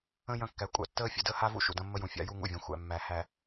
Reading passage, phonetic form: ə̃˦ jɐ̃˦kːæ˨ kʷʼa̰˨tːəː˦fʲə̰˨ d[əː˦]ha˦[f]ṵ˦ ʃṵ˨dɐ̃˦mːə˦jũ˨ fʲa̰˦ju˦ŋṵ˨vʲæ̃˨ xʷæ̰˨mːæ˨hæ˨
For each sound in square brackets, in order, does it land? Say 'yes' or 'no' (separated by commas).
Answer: yes, no